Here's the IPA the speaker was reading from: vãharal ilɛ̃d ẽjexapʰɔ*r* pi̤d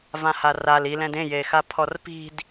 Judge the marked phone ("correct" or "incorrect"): correct